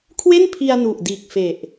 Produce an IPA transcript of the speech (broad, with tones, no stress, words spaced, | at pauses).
kʰwe˥˩npʰi˧a̯ nu˨˩ʔ diː˨˩k̚ fe˨˩ʔ